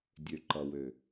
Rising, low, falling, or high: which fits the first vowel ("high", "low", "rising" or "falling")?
low